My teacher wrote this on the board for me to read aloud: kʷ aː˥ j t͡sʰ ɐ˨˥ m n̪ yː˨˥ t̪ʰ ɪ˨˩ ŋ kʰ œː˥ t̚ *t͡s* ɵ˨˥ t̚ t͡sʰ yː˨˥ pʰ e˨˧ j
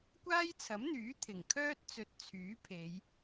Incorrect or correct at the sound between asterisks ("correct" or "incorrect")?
correct